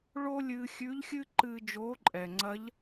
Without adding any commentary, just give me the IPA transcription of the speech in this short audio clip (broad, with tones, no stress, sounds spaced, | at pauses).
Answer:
ɭ o˥ lʲ ɨː˧ xʲ ʉ˧˥ ʎ xʲ ɨ˥ ǃ ɨː˧ d͡ʒ oː˧˥ ǃʼ ɛ˩ ŋ͡ǀ ɐ˧˥ ʎ